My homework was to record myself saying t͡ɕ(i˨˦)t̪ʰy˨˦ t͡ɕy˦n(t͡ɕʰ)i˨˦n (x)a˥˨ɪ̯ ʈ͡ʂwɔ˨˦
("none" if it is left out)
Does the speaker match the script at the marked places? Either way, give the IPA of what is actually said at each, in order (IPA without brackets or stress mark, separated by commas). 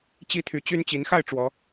i˥˨, t͡ɕ, x